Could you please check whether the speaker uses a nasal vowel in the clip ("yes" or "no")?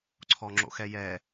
no